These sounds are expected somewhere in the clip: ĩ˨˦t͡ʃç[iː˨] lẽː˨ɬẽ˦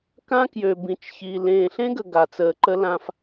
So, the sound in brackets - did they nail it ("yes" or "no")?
yes